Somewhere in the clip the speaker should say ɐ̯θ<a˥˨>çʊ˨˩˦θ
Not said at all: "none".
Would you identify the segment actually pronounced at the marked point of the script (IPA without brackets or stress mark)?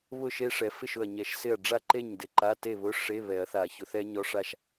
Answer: a˨˩˦